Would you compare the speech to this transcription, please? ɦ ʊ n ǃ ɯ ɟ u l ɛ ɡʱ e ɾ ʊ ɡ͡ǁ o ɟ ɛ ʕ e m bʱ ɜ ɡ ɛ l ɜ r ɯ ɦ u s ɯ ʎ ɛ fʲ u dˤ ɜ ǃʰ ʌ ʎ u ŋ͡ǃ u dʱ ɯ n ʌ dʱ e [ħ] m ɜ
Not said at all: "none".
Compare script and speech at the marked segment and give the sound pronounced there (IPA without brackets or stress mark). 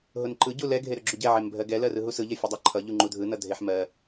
ħ